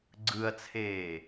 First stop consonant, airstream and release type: click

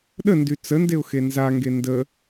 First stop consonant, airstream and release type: implosive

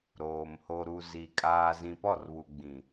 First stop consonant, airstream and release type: ejective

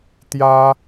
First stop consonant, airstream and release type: plain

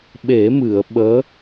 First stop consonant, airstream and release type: implosive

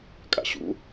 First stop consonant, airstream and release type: ejective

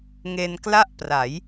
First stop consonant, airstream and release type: plain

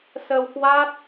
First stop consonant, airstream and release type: plain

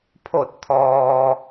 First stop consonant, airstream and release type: aspirated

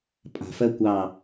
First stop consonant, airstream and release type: ejective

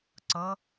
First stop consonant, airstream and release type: click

